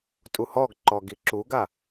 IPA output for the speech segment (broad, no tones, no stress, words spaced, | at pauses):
tʼuhɔɡǃɔ ɡiǁuɡa